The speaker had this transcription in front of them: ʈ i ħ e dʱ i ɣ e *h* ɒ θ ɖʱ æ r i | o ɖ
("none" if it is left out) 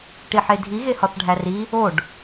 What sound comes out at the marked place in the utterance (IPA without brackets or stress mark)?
h